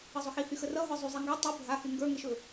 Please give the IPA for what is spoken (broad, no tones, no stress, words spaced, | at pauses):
əzˤɵxihy xərʌɦə˞ zˤyzˤeŋɡa tˤə bʱahy ŋɡə˞ŋeʃɵ